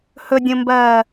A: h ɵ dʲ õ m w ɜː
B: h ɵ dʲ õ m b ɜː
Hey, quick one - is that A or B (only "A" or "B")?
B